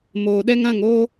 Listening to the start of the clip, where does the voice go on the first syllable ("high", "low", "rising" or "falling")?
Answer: low